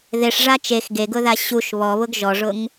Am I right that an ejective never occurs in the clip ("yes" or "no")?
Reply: yes